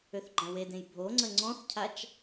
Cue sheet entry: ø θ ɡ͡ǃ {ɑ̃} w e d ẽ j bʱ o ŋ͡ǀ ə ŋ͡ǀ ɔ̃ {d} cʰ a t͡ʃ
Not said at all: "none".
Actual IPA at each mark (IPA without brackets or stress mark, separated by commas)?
ã, θ